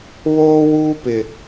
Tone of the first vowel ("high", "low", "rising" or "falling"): high